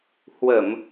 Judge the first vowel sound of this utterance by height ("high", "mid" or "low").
mid